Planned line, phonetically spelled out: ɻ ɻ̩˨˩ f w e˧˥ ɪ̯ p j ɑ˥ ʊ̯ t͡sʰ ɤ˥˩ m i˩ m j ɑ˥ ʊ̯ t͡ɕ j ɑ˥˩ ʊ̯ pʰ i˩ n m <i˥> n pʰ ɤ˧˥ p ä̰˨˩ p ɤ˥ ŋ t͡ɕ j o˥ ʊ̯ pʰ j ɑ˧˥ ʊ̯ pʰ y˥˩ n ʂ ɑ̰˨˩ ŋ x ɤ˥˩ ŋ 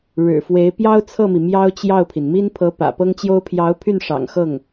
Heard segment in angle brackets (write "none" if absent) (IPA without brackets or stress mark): i˥